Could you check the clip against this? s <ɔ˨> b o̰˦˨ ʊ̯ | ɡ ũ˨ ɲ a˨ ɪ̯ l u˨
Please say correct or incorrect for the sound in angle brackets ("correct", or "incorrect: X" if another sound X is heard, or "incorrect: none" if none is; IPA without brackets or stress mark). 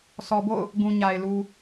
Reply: correct